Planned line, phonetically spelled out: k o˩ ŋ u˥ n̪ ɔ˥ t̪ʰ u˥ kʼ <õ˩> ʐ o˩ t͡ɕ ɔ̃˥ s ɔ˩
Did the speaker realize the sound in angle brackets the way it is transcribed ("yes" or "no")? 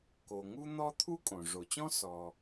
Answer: yes